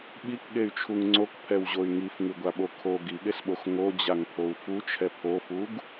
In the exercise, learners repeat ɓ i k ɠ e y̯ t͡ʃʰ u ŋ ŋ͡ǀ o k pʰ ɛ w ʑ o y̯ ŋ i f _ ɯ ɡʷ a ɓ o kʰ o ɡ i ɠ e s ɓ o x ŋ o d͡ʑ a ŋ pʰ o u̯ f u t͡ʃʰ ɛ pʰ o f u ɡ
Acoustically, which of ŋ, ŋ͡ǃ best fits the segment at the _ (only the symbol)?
ŋ